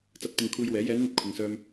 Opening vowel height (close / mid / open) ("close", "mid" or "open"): open